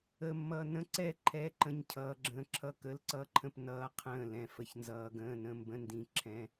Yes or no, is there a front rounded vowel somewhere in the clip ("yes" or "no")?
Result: no